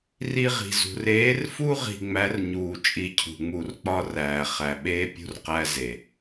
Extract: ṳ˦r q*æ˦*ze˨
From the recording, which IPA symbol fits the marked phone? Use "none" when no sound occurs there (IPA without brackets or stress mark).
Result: æ˦